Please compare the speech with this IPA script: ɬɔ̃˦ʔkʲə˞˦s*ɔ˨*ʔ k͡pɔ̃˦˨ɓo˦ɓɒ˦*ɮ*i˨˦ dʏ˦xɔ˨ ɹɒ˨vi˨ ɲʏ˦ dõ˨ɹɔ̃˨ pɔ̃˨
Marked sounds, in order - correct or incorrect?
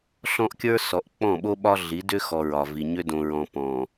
correct, correct

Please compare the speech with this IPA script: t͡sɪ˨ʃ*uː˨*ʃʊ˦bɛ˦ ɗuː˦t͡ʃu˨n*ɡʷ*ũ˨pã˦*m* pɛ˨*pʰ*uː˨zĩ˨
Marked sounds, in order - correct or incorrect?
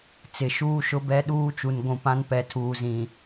incorrect: uː˦, correct, incorrect: n, incorrect: tʰ

